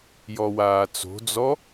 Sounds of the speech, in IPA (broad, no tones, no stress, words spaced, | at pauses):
jɔwaːt͡so̤d͡zɔ